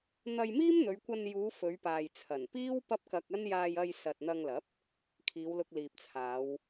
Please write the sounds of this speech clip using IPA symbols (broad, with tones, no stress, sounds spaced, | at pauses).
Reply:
n̪ ɐ˧ j m iː˥ m n̪ ɵ˨˧ ɥ kʷ ɐ˧ n j uː˨˧ f ɵ˨˧ ɥ p aː˨ j t͡sʰ ɐ˨˩ n p iː˥ w p ɐ˥ p̚ k ɐ˧ k̚ ɐ˥ n j aː˧ j ɐ˧ j s ɐ˨ t̚ n̪ ɐ˧ ŋ l ɐ˨˥ p̚ | kʰ iː˨˧ w l ʊ˧ k̚ l iː˨ p̚ t͡sʰ aː˨˧ w